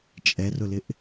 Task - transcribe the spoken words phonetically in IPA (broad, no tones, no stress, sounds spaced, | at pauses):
t͡ʃʼ ɛ r ʊ l ɪ ʔ